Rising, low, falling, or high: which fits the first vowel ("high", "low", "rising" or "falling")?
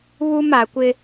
high